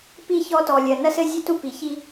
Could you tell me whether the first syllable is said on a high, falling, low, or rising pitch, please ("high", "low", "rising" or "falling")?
falling